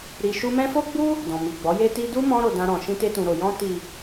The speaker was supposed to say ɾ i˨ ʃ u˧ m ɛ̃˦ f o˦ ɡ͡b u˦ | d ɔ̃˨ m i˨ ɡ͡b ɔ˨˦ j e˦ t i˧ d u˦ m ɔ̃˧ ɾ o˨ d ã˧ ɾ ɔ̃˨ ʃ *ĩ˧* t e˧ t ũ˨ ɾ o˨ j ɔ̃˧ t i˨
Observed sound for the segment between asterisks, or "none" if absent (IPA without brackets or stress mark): ĩ˧